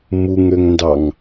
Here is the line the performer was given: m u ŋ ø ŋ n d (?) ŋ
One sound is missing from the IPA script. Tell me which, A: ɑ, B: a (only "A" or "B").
A